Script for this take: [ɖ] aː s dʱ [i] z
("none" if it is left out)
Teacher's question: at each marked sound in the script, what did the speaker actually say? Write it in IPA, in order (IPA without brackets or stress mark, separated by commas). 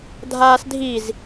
dʱ, i